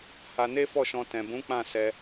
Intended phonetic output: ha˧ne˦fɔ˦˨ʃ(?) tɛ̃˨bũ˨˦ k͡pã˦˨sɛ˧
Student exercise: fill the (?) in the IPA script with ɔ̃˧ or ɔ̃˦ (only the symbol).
ɔ̃˧